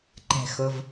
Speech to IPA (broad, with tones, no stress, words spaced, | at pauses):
ǃɛ̤˩xo˩v